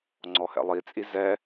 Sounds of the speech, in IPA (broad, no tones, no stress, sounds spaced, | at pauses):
ŋ͡ǀ ɔ h ɛ̰ lˠ i t͡sʼ i z ɛ